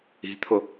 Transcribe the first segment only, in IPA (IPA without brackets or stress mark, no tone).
i̤